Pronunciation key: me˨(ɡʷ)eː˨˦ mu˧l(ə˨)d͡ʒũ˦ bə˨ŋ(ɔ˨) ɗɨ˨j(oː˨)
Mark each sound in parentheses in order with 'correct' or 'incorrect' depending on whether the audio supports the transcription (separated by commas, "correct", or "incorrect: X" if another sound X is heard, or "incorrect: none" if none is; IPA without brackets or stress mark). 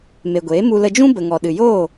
correct, incorrect: ə˧, correct, incorrect: oː˦˨